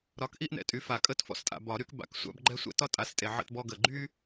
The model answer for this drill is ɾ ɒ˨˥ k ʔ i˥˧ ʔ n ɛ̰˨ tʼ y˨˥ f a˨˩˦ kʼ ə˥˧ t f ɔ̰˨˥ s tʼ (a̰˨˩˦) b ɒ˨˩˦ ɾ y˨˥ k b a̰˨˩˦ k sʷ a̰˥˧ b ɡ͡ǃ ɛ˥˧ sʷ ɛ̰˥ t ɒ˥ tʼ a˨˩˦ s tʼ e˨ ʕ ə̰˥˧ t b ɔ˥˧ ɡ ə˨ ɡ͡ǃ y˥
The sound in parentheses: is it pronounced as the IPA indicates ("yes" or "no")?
no